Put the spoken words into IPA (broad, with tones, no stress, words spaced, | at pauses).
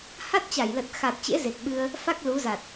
ha˦˥t̚t͡ɕa˧˩jlə˨˩t̚ xa˨˩t̚t͡ɕḛ˧˥ ze˨˩k̚ɓɨ˧ə̯ | fa˦˥k̚ lu˨˦za˨˩t̚